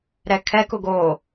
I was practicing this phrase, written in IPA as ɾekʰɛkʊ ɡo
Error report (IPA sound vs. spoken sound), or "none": e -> ɛ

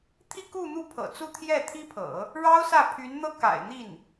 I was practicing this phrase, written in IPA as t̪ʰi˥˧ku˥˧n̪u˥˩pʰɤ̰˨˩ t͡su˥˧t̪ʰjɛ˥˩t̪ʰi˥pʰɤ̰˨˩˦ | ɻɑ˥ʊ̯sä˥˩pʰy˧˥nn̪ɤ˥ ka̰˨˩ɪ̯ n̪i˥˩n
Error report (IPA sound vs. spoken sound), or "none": none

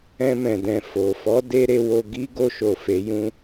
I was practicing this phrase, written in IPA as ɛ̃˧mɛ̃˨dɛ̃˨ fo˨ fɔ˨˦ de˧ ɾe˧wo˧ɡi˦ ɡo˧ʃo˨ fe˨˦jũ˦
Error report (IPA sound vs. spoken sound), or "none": none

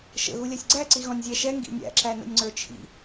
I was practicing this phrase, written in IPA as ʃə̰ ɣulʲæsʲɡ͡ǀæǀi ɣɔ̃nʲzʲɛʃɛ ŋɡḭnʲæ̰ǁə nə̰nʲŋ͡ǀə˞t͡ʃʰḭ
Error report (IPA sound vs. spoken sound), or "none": ə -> æ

